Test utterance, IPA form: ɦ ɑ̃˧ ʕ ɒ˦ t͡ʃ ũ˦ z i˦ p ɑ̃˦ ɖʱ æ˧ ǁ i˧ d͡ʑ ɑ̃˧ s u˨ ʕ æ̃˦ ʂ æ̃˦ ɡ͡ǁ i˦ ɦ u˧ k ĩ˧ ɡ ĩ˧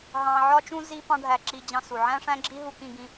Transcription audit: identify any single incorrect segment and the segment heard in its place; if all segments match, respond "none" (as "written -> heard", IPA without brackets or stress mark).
none